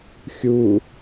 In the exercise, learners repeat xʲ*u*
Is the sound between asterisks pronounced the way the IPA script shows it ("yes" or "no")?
yes